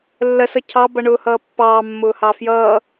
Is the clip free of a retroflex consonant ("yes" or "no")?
no